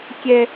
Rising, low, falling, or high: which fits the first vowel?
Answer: high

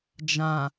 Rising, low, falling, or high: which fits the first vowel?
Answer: low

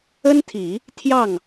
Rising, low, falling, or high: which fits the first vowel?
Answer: high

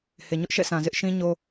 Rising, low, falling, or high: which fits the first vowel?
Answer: low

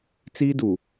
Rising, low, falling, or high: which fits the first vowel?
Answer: high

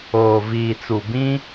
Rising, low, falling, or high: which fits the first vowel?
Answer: low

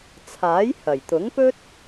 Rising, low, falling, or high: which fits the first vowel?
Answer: rising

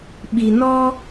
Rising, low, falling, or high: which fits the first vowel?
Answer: low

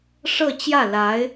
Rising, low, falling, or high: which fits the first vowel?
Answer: falling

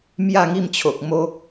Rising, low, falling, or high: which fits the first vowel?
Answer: falling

